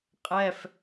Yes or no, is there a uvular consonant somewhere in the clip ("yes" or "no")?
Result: yes